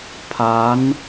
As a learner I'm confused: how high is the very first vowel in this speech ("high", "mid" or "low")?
low